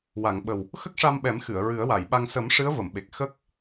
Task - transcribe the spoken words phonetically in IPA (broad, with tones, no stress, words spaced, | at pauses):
wa˨˩˨ŋɓə˨˩w | xə˦˥k̚ʂa˧mɓɛ˨˩˦mxɨ˨˩˨ə̯ ɹɨ˨˩˦ə̯wa˨˩˨jɓa˧ŋ sə˨˩˦m ʂɨ˧˥ə̯və˨˩˨mɓe˨˩k̚ xə˦˥k̚